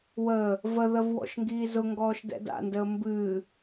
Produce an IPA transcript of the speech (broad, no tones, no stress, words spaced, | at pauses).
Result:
wə | vəðəv wɔ̰ʃŋɡiːzʊŋɡɔːʃ dɛ̰da̰ndəː mbɨː